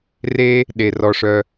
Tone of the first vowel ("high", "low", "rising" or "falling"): high